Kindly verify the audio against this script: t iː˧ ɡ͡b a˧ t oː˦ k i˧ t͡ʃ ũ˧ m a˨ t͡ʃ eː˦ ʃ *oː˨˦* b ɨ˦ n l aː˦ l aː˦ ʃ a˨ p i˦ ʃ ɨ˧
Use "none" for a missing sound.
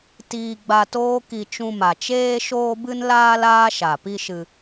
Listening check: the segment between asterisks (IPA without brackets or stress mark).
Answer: oː˦